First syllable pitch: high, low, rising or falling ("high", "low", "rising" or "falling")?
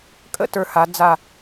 falling